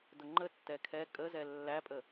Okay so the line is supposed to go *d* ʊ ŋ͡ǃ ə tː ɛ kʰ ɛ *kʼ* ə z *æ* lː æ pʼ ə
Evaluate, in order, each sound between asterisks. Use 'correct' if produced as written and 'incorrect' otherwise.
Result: correct, correct, incorrect: ɛ

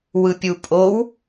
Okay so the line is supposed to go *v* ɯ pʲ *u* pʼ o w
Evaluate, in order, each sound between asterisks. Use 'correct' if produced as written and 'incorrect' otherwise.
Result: incorrect: w, correct

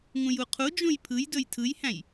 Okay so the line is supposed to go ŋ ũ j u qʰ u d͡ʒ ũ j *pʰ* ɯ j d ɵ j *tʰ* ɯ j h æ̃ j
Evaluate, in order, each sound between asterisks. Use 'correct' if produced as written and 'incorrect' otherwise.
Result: correct, correct

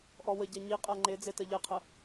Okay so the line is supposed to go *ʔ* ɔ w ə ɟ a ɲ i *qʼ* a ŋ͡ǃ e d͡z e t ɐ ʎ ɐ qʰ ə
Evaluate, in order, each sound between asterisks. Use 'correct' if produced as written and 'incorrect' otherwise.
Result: correct, correct

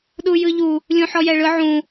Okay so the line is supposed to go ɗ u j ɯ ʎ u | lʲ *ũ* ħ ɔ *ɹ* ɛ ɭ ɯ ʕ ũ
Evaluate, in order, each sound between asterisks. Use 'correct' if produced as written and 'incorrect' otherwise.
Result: correct, incorrect: j

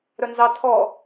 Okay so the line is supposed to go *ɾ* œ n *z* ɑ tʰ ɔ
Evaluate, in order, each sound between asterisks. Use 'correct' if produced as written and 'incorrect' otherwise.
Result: correct, correct

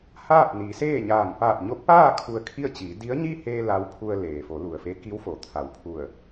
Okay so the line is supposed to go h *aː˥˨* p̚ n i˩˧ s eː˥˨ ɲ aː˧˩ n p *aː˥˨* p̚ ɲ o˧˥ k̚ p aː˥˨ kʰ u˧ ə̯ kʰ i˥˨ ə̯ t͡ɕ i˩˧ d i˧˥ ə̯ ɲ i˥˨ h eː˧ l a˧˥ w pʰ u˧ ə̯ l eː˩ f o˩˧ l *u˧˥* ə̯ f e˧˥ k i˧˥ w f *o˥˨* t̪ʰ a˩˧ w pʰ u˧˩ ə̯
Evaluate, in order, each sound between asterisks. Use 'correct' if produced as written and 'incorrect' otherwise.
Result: correct, incorrect: aː˧˩, incorrect: u˩, incorrect: o˩

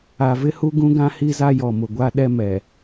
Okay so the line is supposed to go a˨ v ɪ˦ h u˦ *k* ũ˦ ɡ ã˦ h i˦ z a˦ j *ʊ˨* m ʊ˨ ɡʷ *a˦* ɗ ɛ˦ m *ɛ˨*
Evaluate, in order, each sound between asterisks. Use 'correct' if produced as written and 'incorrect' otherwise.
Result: incorrect: ɡ, incorrect: ɔ˨, correct, correct

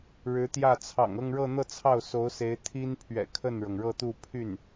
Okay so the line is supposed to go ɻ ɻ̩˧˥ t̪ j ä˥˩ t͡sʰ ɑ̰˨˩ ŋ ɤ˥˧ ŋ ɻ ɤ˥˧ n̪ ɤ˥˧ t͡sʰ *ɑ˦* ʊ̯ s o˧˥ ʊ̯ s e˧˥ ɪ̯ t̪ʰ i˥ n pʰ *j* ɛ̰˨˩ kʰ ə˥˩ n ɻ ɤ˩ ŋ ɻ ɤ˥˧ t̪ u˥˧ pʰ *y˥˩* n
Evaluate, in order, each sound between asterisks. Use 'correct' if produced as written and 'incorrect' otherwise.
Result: incorrect: ɑ˥˩, incorrect: ɥ, correct

